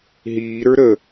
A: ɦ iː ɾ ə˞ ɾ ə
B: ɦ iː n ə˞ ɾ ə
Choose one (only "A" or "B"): A